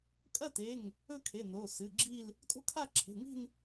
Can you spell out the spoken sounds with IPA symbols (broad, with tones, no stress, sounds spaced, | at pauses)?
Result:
kʼ ɐ˥˧ t e˩˧˩ ŋ | ɵ˥˧ kʰ e˩˧˩ n o˩˧˩ s ɨ˩˧˩ ɡ͡ǁ i˥˧ l | tʼ o̤˥˧ kʰ a˥˧ ǁʰ e̤˩˧˩ ŋ i̤˥˧ n